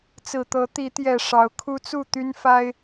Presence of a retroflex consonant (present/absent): present